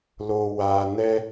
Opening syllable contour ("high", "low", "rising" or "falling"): low